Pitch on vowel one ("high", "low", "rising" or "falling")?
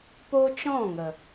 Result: high